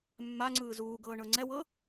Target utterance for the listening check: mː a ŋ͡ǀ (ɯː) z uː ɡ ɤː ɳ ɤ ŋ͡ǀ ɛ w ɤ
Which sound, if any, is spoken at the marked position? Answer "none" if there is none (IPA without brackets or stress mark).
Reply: ɯː